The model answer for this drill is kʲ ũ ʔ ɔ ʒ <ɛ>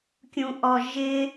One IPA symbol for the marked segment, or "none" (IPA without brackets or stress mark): ɪ